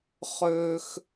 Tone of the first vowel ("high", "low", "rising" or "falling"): high